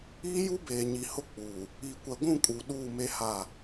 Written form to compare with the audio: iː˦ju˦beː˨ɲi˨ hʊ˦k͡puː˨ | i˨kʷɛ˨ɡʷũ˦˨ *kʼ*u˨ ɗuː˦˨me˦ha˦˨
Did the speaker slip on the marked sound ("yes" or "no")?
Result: no